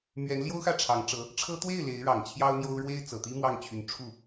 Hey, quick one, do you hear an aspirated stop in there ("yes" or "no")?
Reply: yes